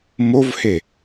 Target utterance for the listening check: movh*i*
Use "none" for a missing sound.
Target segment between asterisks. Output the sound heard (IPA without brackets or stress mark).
e